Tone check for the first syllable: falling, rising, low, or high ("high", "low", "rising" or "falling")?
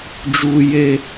low